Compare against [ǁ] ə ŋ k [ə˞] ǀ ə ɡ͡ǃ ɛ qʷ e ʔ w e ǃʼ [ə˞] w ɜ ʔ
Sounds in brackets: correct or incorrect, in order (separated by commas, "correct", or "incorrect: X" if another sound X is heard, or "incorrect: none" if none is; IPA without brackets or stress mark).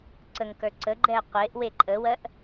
incorrect: ǀ, correct, incorrect: ə